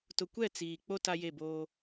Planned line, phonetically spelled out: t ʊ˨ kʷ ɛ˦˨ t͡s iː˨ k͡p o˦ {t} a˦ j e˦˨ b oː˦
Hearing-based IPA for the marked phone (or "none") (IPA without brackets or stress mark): t